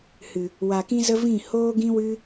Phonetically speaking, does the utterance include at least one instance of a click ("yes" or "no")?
no